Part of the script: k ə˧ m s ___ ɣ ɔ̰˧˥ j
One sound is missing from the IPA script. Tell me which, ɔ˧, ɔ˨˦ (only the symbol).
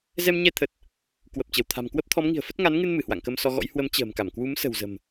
ɔ˧